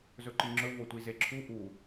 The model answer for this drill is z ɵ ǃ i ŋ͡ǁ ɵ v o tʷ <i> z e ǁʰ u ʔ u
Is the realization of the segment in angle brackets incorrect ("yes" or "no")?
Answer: no